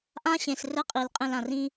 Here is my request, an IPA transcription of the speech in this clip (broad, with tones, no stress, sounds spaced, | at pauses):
ʔ ã˦ ɕ ẽ˨ s r ɘ˦ qʼ i˨ l qʼ ẽ˦ l ã˨ r ĩ˦